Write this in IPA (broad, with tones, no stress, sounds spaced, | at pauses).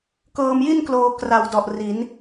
k ɤː˧ m j i˥˩ n k l oː˧ k r a˨˩ w d ɔ˨˩ ʔ r i˩˦ n